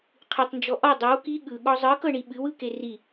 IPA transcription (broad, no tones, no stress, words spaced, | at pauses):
qʰɨtˤnd͡ʒɔ ʔɔ dˤɤw ki ɠɯ ɠɔzˤɯkɤɳi ɓɨwɯke ri